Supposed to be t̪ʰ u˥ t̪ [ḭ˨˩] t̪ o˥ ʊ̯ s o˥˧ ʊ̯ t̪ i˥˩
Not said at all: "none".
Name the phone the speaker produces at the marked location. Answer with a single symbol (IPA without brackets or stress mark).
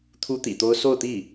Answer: ḭ˨˩